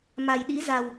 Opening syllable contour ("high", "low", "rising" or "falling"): low